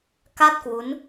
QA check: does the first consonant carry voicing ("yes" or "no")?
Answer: no